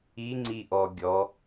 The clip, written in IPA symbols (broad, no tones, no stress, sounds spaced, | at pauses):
i ŋ͡ǀ i ʔ ɔ ɡʲ ɔ